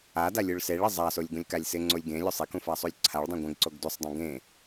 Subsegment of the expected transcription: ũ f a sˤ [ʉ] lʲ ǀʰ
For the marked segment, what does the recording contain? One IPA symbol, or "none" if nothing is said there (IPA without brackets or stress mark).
u